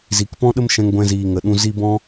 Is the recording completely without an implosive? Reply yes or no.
no